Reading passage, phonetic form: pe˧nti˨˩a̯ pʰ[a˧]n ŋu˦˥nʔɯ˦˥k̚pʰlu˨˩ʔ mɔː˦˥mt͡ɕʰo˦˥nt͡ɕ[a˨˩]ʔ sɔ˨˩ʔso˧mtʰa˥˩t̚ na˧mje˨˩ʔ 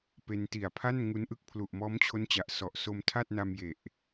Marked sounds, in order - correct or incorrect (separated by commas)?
incorrect, correct